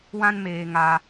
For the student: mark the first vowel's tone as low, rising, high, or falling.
high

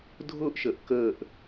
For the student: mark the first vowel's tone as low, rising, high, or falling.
falling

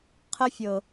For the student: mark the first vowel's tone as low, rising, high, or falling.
high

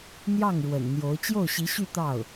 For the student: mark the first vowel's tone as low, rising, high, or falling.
falling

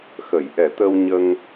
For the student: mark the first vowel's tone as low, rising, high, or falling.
low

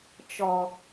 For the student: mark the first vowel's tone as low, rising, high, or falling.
low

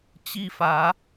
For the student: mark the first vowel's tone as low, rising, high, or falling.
falling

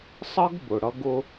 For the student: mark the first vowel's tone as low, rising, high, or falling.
high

